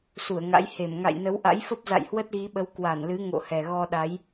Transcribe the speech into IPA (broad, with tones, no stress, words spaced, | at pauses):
su˧˩ə̯ŋa̰˧˥j he˧˩m ŋa̰˧˨jnə˨˦wʔa̰˧˥jfə˦˥p̚ za̰˧˨jhwə˦˥t̚ɣi˨˦ɓə˨˦w kwa˧˩nlɨ˨˦ ŋo̰˧˨hɛ˨˩ ɣɔ˧ɗa˨˦j